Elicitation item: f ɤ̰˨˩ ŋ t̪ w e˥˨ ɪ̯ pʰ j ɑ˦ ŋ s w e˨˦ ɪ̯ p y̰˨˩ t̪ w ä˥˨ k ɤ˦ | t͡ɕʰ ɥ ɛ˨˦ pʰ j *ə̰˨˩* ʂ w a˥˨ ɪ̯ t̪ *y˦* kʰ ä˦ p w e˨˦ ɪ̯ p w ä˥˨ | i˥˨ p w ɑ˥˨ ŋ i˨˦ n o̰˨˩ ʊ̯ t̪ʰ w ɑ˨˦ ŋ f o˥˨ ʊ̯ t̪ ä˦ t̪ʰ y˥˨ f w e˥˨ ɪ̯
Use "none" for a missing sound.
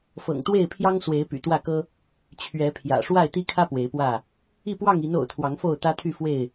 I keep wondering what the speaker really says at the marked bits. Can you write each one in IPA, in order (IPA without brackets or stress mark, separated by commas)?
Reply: ä̰˨˩, i˦